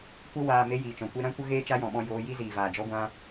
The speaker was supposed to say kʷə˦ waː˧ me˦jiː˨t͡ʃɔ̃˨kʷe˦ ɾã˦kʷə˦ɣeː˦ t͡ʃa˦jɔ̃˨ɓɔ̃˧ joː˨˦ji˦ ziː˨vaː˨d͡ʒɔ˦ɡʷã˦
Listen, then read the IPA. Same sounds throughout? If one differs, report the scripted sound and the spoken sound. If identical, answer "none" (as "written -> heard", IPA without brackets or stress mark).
none